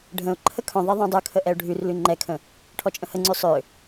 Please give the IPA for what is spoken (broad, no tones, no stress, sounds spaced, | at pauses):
ɖʱ ə̃ ʊ̯ ǃʰ ə kʰ œ̃ ðˤ ɛ ðˤ œ̃ dˤ ø kʰ ə ʔ ɛ ʊ̯ ɖʱ ʉ r l ʉ ŋ͡ǃ ɛ kʰ ə̃ | ʈʰ ɔ t͡ʃʼ ə̃ h ə ŋ͡ǀ ʉ sˤ ø